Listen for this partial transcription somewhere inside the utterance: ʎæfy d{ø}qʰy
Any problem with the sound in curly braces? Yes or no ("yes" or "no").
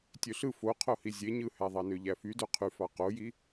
no